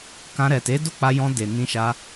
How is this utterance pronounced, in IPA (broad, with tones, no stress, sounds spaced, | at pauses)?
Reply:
k ã˧ ɾ ɛ˨ t e˨˦ d o˦˨ k͡p a˧ j ɔ̃˧ d e˨ n ĩ˧ ʃ a˧